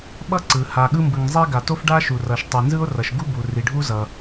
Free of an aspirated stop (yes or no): yes